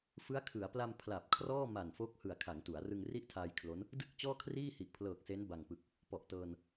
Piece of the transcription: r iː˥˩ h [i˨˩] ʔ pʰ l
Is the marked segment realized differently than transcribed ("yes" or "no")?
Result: no